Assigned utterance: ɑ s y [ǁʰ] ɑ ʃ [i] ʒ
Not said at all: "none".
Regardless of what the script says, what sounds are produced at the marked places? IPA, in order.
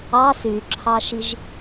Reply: ǁʰ, i

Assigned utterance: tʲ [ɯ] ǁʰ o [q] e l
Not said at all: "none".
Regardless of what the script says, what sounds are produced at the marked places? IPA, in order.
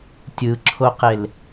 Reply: ɯ, q

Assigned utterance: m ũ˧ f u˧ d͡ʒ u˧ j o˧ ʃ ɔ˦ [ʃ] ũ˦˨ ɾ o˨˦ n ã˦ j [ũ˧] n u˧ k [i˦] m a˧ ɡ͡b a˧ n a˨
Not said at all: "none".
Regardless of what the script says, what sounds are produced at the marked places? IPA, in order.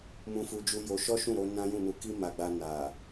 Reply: ʃ, ũ˦˨, i˦

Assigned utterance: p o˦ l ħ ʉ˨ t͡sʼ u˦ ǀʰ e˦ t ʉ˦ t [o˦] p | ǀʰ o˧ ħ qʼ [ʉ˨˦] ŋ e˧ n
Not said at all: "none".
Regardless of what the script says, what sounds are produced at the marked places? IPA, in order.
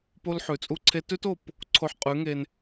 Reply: o˦˨, ʉ˨˦

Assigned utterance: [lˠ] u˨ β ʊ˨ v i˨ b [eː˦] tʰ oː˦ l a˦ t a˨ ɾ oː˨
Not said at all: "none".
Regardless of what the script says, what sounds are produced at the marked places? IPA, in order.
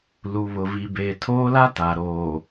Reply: l, eː˨

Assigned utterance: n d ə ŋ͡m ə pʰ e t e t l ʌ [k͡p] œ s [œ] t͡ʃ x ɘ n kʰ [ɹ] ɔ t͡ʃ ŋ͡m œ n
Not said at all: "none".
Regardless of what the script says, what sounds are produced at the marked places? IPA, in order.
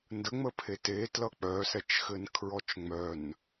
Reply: k͡p, ɛ, ɹ

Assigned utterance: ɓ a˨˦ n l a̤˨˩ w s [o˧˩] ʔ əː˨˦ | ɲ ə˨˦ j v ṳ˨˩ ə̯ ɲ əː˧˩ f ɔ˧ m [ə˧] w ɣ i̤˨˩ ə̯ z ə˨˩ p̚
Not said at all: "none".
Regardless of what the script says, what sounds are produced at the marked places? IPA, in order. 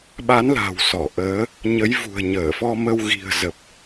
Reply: ɔ˧˩, ə˧

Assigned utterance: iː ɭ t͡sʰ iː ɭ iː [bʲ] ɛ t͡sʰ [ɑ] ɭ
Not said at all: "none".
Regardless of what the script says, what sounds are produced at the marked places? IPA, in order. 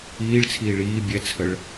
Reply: bʲ, ə

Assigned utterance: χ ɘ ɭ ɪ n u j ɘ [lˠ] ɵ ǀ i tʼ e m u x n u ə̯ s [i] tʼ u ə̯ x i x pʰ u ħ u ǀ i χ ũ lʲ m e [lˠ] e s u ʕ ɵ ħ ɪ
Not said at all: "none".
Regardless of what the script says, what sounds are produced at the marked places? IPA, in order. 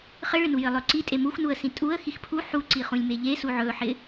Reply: lˠ, ĩ, ʎ

